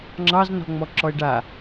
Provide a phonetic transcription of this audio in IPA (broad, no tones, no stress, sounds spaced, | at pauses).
ŋ͡ǁ ɑ z n ɔ̤ ŋ͡m ɔ ǁ ɔ e̯ ɖ a